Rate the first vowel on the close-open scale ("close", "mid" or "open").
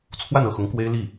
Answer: open